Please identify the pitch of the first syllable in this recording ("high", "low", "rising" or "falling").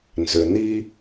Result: low